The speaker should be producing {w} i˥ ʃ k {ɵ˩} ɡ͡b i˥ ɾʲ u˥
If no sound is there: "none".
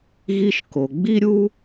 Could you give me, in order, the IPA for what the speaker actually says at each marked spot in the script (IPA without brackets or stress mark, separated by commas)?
ɣ, o˩